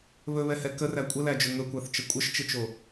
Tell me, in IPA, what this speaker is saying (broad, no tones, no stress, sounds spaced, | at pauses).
β ɵ β ɛ h ɛ k ə r æ kʷʼ ə l æ d͡ʒ ɵ ŋ ɵ kʷ æ θ t͡ʃ ə kʷʼ ə ʃ t͡ʃ ɪ t͡ʃ o